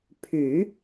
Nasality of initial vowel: oral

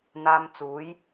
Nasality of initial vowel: oral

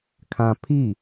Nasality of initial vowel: nasal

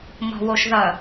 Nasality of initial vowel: oral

